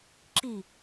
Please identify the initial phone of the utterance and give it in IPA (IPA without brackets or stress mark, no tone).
ǁ